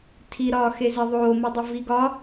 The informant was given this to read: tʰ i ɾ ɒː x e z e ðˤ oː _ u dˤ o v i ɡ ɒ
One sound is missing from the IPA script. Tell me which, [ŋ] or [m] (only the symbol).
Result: m